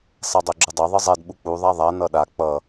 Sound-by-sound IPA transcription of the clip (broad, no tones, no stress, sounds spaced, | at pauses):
sˤ e dˤ o ɡ͡ǁ ɯ dˤ e ðˤ ɯ zˤ ɛ d ɓ u k͡p u ðˤ a ðˤ a n ʌ ɗ a k͡p ʌ